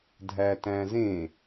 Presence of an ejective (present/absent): absent